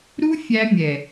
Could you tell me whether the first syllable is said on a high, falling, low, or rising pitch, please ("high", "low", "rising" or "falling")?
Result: high